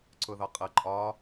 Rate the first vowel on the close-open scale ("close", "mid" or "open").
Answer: close